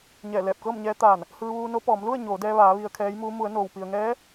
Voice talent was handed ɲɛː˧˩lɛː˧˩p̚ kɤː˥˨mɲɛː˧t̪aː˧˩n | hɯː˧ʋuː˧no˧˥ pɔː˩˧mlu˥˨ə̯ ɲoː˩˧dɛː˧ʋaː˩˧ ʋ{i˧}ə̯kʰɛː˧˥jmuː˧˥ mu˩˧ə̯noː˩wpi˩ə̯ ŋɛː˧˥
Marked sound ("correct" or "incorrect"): correct